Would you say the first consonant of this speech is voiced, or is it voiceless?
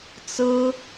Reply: voiceless